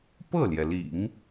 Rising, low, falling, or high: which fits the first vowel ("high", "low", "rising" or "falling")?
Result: falling